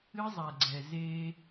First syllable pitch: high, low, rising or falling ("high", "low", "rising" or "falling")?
high